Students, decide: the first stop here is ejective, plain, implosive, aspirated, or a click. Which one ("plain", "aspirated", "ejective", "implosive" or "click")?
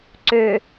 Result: click